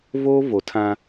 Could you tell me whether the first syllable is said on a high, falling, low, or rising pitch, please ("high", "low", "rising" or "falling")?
high